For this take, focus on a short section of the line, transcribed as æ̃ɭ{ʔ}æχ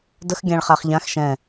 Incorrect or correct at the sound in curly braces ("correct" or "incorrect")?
incorrect